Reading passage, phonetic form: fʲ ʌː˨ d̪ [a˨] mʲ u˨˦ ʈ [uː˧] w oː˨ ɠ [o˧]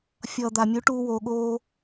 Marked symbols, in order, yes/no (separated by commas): yes, yes, no